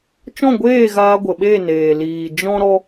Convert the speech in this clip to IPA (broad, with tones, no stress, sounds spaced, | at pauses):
t͡ʃ ɔ̃˦˨ ɡʷ eː˦˨ ɣ aː˧ ɡʷ ə˨ ɓ e˦˨ n eː˨ l iː˨ d͡ʒ ɔ̃˦ ɾ ɔ˦